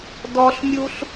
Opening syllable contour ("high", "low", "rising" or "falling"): high